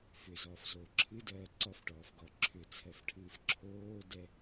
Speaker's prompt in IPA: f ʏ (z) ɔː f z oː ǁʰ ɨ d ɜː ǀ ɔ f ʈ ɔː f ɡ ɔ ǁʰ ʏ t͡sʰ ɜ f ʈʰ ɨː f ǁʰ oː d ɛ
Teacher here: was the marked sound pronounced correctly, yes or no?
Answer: yes